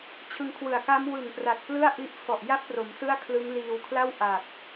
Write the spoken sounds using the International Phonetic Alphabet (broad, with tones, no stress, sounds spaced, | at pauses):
t͡ɕʰ ɯ˧ ŋ kʰ w ɯ˨˩ a̯ k a˦˥ m w ɯ˨˩ ŋ p r a˨˩ t̚ p l ɯ˥˩ a̯ ʔ i˦˥ ʔ f ɔ˨˩ ʔ j a˥˩ p̚ r o˩˦ m s ɯ˥˩ a̯ kʰ l ɯ˦˥ ŋ l iː˧ w kʰ l a˥˩ w ʔ a˨˩ p̚